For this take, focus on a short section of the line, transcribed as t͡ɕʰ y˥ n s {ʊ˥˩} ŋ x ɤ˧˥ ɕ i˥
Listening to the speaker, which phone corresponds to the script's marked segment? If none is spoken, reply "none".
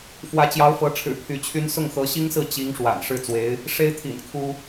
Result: ʊ˥˩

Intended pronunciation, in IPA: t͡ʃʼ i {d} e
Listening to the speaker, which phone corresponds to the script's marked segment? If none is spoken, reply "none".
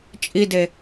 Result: d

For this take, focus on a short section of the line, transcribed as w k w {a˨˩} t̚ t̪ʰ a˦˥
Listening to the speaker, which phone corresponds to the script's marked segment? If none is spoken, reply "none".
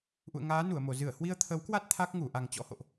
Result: a˦˥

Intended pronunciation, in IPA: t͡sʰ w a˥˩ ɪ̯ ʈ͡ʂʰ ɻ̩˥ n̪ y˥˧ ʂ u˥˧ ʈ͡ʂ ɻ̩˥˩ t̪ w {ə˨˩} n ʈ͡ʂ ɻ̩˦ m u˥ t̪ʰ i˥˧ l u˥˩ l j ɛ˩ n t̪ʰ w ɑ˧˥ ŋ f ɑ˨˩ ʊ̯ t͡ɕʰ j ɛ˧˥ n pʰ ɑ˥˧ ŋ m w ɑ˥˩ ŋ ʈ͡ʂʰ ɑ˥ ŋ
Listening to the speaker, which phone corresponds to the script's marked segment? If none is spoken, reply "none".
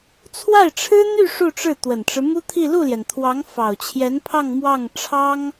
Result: ə˨˩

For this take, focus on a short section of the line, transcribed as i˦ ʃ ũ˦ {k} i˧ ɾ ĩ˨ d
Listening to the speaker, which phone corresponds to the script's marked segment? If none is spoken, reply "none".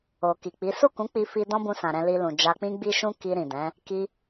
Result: k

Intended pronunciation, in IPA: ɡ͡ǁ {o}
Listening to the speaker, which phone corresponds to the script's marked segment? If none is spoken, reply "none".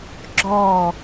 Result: ɔ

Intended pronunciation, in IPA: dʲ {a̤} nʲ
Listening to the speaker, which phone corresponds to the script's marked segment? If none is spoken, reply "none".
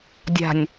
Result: a̤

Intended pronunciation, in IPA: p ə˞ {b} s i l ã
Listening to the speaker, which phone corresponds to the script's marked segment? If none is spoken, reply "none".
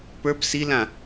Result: b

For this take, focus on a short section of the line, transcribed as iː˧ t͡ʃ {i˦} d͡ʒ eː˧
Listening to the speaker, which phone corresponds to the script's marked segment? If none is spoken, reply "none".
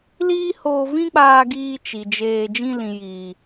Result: i˨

